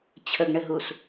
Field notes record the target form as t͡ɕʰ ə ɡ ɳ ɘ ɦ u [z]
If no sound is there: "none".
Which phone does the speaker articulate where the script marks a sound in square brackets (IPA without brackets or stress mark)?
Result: s